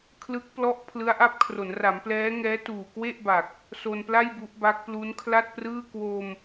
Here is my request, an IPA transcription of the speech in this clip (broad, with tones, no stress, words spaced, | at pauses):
kʰlɯ˦˥k̚plɔ˦˥ʔ pʰlɯ˦˥a̯ʔa˦˥p̚kʰro˩˦nra˩˦m plɛː˦˥ŋɛː˦˥ tuː˨˩kwe˥˩ʔba˨˩k̚ | so˧npla˥˩j bu˦˥ʔba˦˥k̚ plu˦˥nkʰla˥˩t̚prɯː˥˩ kwo˧m